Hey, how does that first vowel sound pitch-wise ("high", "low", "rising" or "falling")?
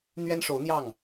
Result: high